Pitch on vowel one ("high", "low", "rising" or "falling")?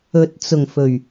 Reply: rising